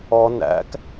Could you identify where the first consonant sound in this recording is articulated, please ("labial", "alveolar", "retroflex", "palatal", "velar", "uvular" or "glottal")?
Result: alveolar